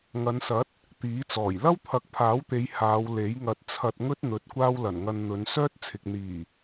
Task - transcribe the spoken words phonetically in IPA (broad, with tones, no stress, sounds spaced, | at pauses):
ŋ ɐ˨˧ n s ɐ˨˥ t̚ | t̪ iː˨˥ t͡s ɔː˨˩ j l ɐ˥ w t̪ʰ ɐ˨˥ k̚ pʰ aː˨˥ w t̪ e˨˧ j h aː˨˧ w l e˨˥ j ŋ ɐ˧ t̚ t͡sʰ ɐ˧ t̚ ŋ ɵ˥ t̚ n̪ ɵ˨˥ t̚ kʷ aː˥ w l ɐ˨˩ n ŋ ɐ˧ n n̪ ɵ˨˧ n s œː˥ t̚ t͡sʰ ɪ˨ k̚ n̪ iː˨˩